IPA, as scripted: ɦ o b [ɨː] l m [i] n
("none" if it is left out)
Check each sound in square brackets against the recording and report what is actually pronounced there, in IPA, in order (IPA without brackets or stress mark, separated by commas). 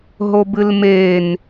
ɨ, e